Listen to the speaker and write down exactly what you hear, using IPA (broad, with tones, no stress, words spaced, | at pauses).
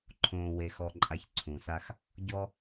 ǃʰõː˨we˨xɔ˨ǃʼa˨ç ǀʰũ˨sa˦x | ɟɔ˦